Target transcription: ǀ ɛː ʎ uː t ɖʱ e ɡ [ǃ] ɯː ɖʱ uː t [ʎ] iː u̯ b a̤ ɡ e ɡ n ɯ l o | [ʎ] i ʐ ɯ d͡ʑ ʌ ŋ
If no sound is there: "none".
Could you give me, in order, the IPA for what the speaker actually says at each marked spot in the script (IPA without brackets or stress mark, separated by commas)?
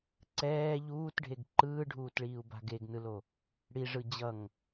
ǃ, ɭ, ɽ